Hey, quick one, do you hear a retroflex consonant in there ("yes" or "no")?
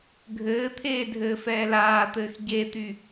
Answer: no